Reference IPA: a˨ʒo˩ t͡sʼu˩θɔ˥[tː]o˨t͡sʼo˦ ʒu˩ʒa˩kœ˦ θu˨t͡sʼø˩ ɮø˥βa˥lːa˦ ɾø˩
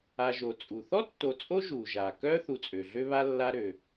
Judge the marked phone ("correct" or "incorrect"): correct